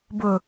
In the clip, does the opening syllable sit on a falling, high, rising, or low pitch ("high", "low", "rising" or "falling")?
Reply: low